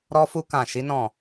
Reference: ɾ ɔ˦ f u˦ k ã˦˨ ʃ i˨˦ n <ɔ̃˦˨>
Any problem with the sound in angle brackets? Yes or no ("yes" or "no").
no